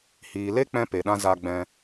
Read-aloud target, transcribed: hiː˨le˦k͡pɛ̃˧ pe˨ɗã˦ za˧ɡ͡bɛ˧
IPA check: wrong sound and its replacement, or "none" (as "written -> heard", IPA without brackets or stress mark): ɛ˧ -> ɛ̃˧